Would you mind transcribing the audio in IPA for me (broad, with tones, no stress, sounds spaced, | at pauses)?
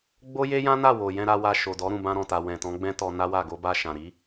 ɡ͡b o˦ j e˦ j ã˦ n a˦˨ w o˨ j ɛ̃˧ ɾ a˧ w a˧ ʃ o˨ d ɔ˨˦ ɾ ũ˦˨ b ã˧ ɾ ɔ̃˨ t a˨ w ɛ̃˨ t ɔ̃˨˦ ɡ͡b ɛ̃˦ t ɔ˧ n a˦ w a˦˨ ɡ o˧ b a˧ ʃ ã˨ ɾ i˨˦